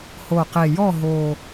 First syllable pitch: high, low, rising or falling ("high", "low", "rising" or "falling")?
low